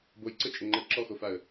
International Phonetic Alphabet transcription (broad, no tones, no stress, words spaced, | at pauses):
bojǀɘt͡ʃʼə ŋ͡ǃə ǁɔxofaə̯